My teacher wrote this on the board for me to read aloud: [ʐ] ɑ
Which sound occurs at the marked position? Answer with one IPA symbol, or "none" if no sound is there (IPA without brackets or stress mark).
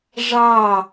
ʐ